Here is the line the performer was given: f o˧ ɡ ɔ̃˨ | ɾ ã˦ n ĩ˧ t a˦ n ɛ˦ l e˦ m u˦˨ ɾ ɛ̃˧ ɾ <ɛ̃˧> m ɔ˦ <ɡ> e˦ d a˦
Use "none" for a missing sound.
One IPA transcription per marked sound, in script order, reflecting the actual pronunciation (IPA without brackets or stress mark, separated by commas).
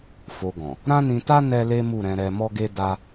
ɛ˧, ɡ